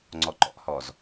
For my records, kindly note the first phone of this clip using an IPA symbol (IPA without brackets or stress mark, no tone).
ŋ͡ǀ